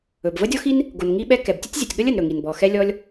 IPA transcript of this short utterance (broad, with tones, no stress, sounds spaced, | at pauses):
ɵ˩ b v ə˥ dʲ ɔ˥ x i˥ n | ɡ o˩ n ŋ i˥ ɓ ɛ˥ k ɛ˩ b tʲ ə˥ tʲ zʲ ə˩ tʲ ɠ ə˥ lʲ ə˩ n ɾ ɵ˩ ŋ i˩ n b ɔ˩ x ɛ˥ lʲ ɔ˥ lʲ